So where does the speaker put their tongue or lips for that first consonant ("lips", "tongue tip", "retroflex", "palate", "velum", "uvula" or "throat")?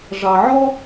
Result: retroflex